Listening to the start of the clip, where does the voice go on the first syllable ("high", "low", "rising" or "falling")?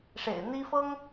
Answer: low